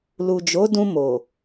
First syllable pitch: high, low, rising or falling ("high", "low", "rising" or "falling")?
low